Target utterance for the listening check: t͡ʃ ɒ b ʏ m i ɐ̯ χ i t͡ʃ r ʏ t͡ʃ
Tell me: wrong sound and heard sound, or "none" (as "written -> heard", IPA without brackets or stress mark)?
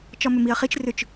b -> m